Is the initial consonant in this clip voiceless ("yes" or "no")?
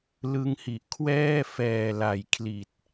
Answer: no